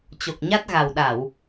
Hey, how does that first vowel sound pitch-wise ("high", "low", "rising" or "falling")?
low